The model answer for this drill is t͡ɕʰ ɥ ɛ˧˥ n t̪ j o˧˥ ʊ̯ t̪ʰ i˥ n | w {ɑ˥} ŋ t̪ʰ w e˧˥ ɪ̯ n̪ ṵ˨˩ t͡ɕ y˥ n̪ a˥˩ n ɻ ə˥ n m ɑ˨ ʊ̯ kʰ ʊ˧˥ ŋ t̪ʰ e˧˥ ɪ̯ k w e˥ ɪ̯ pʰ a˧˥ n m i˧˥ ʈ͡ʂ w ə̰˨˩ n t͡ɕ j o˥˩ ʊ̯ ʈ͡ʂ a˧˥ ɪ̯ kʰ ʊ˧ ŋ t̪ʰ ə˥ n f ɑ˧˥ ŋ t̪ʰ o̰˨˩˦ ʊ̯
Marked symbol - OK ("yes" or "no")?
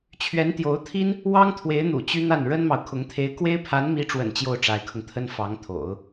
yes